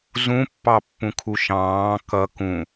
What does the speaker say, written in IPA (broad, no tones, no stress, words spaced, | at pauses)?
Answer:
zũ pːɑpːũkʰuʃɑ̃ː kʌ kũ